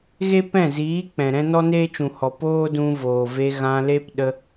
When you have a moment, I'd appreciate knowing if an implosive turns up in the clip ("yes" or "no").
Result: yes